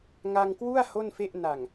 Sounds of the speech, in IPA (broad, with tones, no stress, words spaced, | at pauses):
ŋa˧ŋkwu˥˩a̯ ho˥˩nfe˥˩ʔ na˨˩ŋ